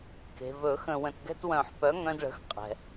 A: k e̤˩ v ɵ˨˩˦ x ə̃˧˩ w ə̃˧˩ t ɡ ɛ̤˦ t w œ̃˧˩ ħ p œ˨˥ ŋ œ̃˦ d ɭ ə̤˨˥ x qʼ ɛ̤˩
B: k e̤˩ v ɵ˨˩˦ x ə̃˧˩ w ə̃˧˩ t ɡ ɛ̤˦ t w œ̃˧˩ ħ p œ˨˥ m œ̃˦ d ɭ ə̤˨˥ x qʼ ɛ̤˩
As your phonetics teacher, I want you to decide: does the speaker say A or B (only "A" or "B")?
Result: A